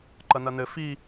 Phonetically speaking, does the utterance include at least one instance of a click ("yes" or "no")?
yes